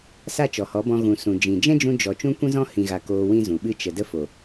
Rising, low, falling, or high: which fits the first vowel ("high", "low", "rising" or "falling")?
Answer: falling